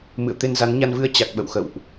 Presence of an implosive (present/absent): present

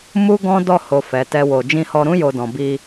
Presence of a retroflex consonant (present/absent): absent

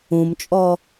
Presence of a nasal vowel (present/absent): present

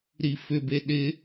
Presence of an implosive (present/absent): present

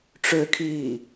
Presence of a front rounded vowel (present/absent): present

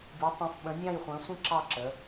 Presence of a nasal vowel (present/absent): present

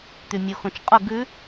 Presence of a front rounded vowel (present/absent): present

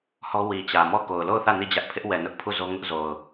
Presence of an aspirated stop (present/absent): present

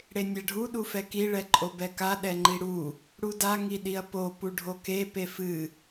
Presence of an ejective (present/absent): present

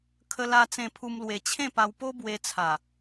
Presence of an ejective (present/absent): absent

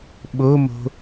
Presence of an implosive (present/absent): present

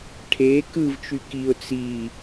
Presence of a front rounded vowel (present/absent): present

